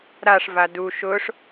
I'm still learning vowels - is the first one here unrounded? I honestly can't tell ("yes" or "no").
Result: yes